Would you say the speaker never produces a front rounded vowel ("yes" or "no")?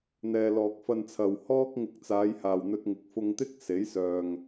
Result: no